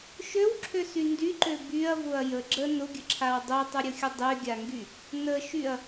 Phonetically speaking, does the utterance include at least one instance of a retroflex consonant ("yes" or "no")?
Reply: no